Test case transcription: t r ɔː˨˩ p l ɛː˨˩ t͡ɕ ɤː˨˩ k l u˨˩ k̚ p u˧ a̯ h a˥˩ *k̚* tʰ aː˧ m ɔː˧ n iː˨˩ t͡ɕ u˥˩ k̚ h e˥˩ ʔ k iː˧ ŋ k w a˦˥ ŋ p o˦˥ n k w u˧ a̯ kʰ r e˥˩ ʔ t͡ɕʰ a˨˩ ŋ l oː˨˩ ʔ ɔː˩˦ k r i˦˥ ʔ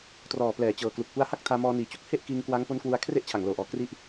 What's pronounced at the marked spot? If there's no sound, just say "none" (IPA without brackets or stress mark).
k̚